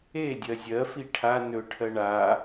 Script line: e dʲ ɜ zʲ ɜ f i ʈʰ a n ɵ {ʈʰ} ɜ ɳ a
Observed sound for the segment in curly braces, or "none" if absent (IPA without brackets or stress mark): ʈʰ